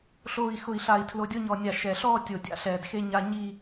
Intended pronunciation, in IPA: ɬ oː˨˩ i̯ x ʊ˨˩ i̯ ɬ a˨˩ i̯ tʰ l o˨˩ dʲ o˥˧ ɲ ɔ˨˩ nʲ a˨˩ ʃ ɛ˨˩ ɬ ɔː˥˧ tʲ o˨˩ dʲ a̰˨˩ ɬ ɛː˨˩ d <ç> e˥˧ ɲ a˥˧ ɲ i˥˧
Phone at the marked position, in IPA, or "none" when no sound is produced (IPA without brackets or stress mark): x